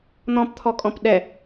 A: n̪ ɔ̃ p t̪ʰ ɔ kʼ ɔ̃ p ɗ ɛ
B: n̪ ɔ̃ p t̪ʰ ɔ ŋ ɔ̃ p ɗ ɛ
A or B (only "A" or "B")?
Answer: A